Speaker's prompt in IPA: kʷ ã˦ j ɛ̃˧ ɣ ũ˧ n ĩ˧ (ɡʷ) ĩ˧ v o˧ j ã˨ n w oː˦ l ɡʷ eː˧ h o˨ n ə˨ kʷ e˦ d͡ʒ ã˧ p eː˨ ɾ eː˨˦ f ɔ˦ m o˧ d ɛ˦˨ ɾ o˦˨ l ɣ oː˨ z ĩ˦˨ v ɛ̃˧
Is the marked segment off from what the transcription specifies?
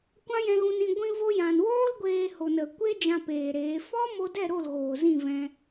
no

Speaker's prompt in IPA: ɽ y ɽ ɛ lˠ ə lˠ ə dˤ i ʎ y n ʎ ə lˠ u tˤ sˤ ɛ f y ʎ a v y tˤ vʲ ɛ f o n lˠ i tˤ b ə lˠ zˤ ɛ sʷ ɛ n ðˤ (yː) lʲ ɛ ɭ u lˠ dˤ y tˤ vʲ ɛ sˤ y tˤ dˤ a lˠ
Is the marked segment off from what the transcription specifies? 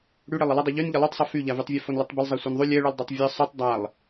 yes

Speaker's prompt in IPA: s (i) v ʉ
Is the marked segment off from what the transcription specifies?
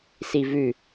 no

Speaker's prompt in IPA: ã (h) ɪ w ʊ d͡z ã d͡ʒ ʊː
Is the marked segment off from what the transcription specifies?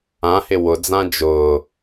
no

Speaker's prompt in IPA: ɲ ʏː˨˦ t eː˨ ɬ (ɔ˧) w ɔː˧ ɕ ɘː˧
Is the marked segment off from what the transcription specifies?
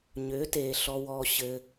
no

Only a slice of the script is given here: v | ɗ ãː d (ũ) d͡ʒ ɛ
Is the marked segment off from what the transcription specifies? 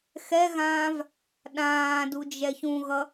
yes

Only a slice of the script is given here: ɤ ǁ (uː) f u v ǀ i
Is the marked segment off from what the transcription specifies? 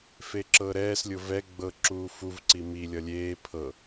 no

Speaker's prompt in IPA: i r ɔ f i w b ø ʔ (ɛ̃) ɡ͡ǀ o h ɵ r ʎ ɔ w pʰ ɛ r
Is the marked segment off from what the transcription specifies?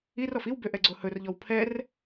yes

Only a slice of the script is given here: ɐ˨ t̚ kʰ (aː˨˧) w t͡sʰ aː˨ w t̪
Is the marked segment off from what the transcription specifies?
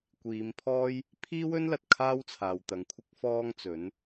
yes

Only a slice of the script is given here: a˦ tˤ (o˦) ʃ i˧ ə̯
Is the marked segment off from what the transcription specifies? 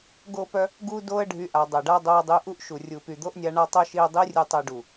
no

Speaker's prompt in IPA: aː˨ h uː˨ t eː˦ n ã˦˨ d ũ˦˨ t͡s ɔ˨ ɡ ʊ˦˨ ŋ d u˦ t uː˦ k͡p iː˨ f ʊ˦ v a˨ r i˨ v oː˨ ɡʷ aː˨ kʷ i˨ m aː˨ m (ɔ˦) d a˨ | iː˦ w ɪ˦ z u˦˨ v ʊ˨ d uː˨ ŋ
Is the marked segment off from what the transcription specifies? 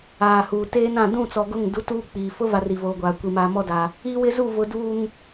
no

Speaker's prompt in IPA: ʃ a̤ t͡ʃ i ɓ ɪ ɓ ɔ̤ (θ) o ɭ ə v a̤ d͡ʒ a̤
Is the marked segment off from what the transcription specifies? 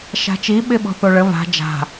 no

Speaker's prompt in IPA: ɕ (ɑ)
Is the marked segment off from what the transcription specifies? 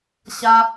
yes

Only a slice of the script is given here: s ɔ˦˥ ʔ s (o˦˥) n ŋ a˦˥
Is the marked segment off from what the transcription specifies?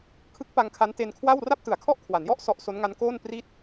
no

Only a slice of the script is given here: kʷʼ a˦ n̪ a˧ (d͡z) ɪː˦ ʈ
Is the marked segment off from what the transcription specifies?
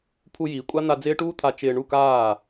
no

